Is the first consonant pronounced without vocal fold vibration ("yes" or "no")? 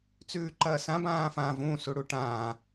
yes